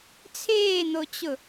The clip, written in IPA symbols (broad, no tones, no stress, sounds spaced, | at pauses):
t͡sʰ eː n̪ o t͡ɕ ʊ